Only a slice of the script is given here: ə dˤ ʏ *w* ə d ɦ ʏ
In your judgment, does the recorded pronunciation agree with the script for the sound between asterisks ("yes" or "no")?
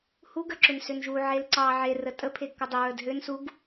no